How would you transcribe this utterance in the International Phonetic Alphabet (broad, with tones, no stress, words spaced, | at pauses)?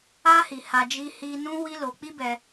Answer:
a˧hi˨ ha˧ d͡ʒi˧hi˧ nũ˦wi˦lo˧k͡pi˦ bɛ˧